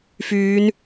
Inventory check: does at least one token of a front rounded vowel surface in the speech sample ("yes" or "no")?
yes